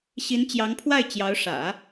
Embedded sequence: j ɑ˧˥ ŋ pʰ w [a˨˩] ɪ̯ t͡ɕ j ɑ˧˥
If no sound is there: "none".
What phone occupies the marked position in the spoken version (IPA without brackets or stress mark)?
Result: a˥˩